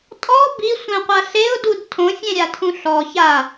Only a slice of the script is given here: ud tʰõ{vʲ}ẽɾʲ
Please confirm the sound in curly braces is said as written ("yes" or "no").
no